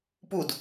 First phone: p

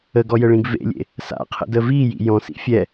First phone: ə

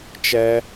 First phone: t͡ʃ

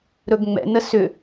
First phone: ɾ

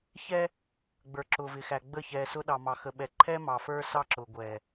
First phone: ç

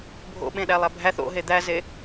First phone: bʱ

